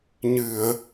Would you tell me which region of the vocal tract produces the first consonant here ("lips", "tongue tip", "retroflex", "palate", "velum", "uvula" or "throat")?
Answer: palate